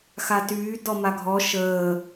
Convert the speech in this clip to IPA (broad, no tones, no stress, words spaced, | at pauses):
xatyː dɔmaɡʱɔ ʃəː